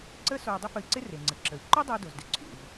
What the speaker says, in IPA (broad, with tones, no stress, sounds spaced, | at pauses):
ǀ ə˥ s o˧ u̯ dˤ ɪ˥ f ə˧ i̯ ǀ ɪ˥ r e˩ ŋ͡ǀ ə˩ ǁ ə˩ i̯ ǃ o˥ dˤ ə˧ y̯ d o˩ z d ɪ˩ ǀʰ ṵ˩ v